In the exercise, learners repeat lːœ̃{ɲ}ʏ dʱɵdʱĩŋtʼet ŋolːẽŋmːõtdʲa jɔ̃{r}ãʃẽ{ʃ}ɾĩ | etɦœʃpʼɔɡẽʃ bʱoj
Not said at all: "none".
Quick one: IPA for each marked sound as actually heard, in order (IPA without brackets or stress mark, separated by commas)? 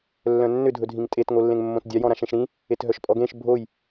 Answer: nː, ɾ, ʃ